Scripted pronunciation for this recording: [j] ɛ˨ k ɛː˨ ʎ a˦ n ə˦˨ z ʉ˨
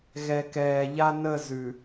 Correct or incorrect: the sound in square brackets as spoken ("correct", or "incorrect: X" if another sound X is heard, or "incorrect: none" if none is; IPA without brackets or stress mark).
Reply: incorrect: ɣ